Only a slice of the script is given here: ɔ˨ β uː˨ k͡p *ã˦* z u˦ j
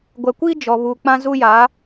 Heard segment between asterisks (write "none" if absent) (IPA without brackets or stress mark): ã˦